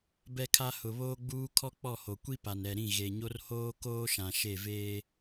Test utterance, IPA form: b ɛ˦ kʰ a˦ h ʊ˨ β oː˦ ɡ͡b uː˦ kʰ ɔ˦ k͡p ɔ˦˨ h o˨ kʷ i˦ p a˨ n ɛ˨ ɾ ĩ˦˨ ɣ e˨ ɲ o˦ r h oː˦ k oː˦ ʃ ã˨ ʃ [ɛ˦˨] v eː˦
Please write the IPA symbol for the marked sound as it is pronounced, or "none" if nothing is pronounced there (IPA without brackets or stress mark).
e˦˨